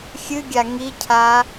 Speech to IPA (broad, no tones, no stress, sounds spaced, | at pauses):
xʲ ɨ ɡʲ a ŋ i cʰ a